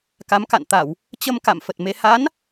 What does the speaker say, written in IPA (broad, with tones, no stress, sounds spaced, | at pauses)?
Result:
k a˨˦ m k a̰˧˨ n t̪ a˧˩˨ w | t͡ɕ ə˧ m k a̰˧˨ m f ə˨˩ t̚ m e˧ h a˨˦ n